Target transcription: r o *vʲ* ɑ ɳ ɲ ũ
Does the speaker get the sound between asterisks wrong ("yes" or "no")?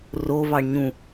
yes